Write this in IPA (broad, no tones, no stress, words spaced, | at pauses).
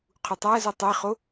qʰutˤæzu tˤeχo